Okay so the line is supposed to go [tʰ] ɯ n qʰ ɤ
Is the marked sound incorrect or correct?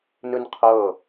incorrect